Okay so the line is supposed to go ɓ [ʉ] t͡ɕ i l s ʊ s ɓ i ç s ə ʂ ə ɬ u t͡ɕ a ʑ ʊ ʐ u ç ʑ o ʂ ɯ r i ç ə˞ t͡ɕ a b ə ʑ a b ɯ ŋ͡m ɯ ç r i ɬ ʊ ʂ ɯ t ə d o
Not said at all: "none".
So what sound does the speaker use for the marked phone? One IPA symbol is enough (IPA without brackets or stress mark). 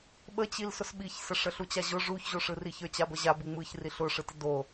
ə